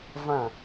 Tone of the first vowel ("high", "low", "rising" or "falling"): falling